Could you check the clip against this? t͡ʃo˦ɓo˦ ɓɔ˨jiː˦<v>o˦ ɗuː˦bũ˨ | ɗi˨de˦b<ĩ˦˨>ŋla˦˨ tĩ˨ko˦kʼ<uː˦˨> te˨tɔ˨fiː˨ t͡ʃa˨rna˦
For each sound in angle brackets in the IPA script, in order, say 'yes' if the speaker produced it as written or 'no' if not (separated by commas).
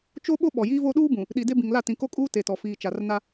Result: yes, no, no